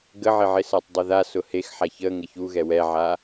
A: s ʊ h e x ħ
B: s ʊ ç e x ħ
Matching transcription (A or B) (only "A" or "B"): A